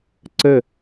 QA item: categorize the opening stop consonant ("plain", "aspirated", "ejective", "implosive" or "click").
click